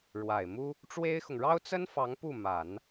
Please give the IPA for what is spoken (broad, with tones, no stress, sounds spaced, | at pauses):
ɻ w a˨˩ ɪ̯ m u˥ | ʈ͡ʂ w e˥ ɪ̯ x ʊ˨ ŋ ɻ ɑ˥ ʊ̯ t͡s ə˥ n f ɑ˧˥ ŋ p u˥˩ m a˨˩˦ n